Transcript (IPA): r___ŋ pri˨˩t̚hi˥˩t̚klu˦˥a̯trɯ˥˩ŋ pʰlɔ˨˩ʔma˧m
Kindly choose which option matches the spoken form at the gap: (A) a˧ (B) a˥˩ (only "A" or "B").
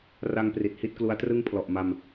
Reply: A